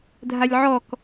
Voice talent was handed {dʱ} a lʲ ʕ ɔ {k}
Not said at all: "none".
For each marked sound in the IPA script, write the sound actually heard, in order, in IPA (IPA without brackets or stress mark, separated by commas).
dʱ, k